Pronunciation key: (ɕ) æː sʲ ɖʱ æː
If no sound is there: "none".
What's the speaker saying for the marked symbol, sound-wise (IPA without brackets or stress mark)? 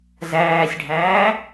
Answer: z